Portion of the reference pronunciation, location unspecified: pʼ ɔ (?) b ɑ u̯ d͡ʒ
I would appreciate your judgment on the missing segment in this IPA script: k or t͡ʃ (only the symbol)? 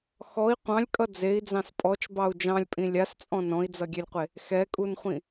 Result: t͡ʃ